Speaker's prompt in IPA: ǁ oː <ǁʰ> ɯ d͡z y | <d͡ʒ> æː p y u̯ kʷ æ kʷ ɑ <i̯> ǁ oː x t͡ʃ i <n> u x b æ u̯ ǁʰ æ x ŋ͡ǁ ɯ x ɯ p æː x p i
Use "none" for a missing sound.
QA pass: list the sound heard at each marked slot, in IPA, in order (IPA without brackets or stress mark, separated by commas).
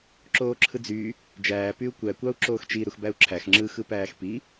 ǁʰ, d͡ʒ, u̯, ɾ